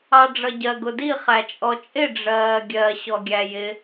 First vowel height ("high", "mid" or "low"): low